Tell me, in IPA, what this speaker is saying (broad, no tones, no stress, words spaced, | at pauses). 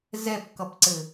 zɛpkʌpǀɘ